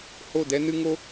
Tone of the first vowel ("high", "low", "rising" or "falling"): falling